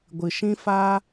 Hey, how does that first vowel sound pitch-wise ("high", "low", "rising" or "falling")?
low